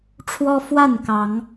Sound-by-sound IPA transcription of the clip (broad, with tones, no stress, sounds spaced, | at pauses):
ʈ͡ʂʰ w ɔ˦ f w a˥˨ n k ɑ˨˦ ŋ